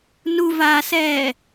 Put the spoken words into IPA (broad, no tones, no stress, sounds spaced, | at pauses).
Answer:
n u v aː s ɛː